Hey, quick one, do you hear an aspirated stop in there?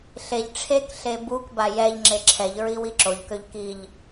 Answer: yes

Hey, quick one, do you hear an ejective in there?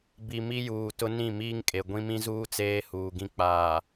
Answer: yes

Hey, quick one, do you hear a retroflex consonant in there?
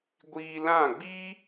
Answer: no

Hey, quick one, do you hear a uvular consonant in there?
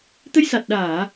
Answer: no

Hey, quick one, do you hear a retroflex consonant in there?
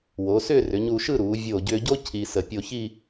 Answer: no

